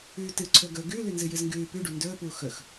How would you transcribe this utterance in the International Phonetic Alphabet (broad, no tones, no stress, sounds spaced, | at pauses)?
ʉː t ɨ ǀʰ ɵ ɡ ɵ ɡ ʉ l ʉ n z ɨ j ɨ z ŋ ɡ ʉː p ʉ ɖ u n d ɵː p uː x ɵ x